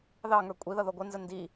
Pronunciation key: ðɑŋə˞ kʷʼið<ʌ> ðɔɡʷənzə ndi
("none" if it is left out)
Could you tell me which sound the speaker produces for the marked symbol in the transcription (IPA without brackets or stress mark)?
ʌ